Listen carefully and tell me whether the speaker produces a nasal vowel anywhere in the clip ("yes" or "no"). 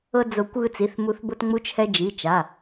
no